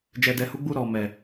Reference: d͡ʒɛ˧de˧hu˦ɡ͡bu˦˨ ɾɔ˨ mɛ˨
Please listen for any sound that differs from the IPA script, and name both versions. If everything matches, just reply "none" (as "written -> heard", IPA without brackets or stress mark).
e˧ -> ɛ˧